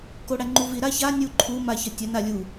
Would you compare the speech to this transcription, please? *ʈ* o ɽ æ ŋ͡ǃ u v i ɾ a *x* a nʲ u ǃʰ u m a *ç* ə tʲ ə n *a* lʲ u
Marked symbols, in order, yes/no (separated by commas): no, no, yes, yes